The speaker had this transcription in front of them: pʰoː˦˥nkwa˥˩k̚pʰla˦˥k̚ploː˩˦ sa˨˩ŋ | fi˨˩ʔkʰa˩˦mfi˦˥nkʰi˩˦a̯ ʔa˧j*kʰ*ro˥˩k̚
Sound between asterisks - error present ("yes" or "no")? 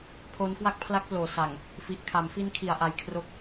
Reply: no